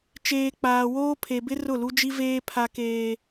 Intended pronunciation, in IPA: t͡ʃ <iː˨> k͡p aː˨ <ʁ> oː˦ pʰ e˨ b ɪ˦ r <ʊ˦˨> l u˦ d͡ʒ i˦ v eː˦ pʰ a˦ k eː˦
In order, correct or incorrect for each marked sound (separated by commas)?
incorrect, incorrect, correct